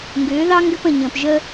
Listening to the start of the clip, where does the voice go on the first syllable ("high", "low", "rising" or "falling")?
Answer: rising